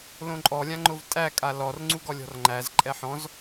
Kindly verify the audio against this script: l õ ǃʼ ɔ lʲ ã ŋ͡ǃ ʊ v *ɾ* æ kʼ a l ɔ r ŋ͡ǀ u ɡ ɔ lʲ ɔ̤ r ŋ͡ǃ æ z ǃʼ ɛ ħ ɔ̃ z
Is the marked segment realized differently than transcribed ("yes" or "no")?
yes